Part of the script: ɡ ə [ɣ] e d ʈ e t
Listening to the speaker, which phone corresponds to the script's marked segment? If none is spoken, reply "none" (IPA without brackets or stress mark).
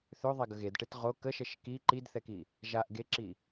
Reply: ɣ